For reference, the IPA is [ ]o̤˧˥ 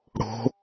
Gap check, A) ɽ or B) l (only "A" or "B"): A